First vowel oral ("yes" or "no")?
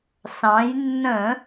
no